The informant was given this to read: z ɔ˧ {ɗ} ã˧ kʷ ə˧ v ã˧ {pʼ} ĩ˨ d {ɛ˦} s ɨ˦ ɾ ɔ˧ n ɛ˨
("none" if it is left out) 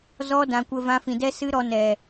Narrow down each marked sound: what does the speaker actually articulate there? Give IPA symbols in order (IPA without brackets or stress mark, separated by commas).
d, f, ɛ˦